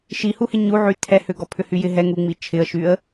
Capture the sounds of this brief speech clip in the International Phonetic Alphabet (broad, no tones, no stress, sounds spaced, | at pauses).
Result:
ʃ i h u h ɪ ɲ u ʕ y tʰ ɛ h ʏ ɡ ɔ pʰ ʏ h y j ɪ ɦ ɛ ŋ u ŋ͡m i t͡ʃʰ ɪ ə̯ ʃ y ə̯